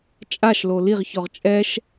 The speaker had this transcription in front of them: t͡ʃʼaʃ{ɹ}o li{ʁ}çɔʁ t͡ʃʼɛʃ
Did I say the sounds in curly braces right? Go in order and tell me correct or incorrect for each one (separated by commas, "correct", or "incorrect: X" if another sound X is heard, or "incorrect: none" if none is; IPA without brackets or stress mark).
incorrect: l, correct